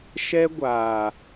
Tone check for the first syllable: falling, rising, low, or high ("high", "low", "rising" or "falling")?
high